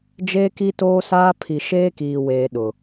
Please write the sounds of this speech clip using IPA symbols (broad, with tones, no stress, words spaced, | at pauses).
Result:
d͡ʒeː˦ki˦toː˦saː˦ pʰi˨ʃeː˦kiː˨weː˨ ɗʊ˨